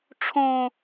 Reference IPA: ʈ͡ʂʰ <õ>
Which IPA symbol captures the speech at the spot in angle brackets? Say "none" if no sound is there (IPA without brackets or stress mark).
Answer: õ